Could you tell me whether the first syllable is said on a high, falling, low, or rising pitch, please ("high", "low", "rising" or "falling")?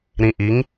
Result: low